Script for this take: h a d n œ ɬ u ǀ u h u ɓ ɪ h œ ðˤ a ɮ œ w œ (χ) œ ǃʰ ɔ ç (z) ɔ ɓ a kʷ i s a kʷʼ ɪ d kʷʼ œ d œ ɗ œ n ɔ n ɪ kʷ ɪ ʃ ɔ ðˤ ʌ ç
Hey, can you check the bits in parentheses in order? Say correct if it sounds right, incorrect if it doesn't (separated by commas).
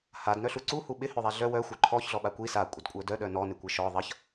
incorrect, incorrect